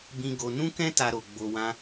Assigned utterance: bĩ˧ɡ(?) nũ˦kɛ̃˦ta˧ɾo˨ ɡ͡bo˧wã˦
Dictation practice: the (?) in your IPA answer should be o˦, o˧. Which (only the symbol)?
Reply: o˧